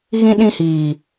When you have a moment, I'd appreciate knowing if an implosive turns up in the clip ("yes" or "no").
yes